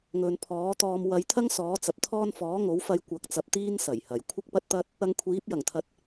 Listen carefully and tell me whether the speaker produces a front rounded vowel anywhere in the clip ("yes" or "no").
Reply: no